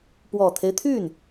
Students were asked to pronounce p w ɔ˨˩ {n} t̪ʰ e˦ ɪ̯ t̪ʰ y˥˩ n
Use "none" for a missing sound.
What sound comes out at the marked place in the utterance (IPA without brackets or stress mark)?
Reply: none